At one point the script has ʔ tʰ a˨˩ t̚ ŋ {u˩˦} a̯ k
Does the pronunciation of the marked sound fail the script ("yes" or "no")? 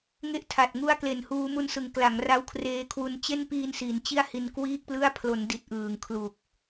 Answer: yes